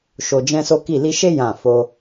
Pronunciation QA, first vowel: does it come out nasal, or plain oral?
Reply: oral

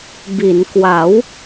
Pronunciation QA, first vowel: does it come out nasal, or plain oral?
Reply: oral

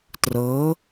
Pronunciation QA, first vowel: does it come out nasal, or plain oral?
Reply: oral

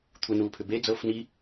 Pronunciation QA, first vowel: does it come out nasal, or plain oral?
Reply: oral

